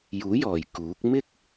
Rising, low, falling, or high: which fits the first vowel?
rising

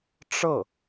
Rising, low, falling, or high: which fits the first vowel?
falling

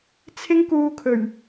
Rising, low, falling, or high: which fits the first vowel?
high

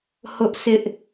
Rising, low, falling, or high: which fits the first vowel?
high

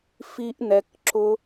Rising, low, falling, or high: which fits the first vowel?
high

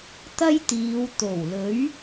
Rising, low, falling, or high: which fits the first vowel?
high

